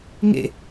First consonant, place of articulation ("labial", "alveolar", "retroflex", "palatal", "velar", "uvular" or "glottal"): velar